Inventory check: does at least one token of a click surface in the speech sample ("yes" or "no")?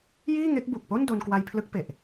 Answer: no